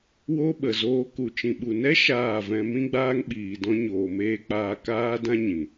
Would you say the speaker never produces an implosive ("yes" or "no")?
no